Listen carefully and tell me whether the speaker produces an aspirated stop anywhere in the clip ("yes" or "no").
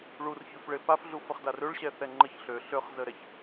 no